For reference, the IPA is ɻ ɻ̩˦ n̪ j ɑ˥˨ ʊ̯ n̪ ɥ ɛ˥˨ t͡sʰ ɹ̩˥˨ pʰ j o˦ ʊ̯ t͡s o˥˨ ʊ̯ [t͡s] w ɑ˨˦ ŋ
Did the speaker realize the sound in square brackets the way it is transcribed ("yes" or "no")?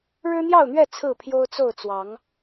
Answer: yes